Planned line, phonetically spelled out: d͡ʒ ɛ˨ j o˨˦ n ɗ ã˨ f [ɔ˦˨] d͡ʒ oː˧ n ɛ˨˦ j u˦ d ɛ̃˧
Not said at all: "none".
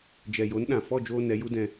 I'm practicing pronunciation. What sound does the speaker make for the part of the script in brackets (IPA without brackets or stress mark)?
ɔ˦˨